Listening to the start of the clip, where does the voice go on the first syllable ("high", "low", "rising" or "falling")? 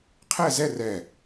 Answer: falling